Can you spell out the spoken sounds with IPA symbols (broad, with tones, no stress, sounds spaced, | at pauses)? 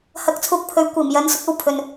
h ɐ˧ k̚ t͡sʰ uː˧ k̚ pʰ ɵ˨ ɥ kʷ iː˨˩ m j ɐ˨˧ n s ʊ˨˥ k̚ ɐ˥ w pʰ ɵ˨ n